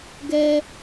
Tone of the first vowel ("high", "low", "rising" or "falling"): high